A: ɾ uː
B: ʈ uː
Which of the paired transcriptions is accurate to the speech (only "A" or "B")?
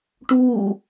B